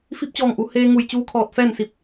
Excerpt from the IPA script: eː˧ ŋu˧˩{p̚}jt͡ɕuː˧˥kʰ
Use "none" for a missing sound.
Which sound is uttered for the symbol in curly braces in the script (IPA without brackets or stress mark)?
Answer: none